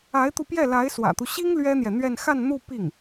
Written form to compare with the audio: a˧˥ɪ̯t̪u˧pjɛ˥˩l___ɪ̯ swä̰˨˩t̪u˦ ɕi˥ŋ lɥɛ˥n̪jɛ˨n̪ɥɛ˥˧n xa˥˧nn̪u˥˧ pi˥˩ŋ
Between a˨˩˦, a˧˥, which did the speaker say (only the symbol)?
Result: a˧˥